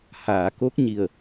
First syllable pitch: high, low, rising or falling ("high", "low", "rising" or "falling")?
low